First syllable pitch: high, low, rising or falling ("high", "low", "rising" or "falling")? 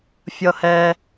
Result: high